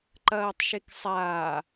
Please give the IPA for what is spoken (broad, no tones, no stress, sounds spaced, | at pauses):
ǃ ɐː tˤ ʃ e k sˤ aː